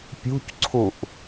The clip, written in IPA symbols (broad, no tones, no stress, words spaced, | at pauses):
pʲṳcǀʰuʔ